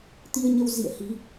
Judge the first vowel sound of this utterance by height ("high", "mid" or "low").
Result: high